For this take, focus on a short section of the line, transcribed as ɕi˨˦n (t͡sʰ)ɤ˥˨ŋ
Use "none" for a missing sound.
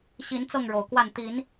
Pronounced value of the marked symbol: t͡s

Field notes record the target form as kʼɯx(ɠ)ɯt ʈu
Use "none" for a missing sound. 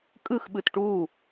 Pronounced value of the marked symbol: ɓ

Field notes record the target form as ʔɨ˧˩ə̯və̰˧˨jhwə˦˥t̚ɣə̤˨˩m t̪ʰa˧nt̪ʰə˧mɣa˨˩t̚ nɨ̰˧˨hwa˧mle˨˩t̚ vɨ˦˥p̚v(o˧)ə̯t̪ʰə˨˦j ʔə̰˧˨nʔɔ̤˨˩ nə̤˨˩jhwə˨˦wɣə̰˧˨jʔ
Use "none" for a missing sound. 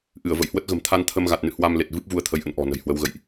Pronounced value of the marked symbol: u˧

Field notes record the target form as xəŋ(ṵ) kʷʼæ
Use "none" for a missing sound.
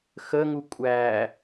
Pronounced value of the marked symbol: u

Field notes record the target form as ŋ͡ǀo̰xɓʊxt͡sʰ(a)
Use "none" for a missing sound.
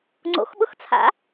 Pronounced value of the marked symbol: a̰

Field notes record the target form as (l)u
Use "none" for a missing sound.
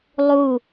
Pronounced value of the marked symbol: lˠ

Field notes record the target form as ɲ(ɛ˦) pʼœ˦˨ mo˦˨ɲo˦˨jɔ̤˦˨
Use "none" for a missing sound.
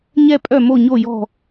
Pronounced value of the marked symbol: ɛ˦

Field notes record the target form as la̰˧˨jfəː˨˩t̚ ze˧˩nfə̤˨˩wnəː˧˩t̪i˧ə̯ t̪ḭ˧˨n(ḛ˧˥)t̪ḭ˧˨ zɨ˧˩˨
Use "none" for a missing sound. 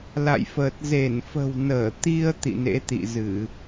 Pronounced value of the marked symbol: ḛ˧˥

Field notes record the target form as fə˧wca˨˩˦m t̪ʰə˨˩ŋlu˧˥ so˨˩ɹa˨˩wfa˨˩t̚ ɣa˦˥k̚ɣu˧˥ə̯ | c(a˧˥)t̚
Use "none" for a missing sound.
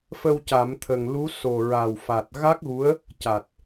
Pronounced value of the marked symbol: a˨˩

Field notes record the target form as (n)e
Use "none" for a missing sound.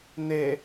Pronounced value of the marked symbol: n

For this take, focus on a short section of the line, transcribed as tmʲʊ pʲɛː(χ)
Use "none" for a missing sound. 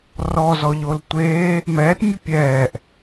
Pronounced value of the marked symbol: ʔ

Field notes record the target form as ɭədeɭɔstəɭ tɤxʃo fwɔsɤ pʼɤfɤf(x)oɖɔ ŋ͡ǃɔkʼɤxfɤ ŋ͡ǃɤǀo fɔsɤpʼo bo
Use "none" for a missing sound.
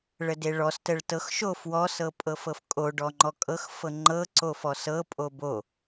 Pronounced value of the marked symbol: kʼ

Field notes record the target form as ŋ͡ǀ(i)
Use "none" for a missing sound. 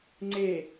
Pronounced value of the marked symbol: e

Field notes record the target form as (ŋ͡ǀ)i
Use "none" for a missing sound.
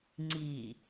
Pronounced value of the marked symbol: ŋ͡ǀ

